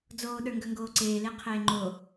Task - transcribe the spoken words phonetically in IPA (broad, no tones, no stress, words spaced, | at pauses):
d͡zoːɗə˞ŋɡœŋɡoː ǀeːleqʰeː ŋ͡ǃo